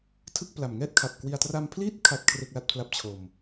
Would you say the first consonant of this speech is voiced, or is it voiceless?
voiceless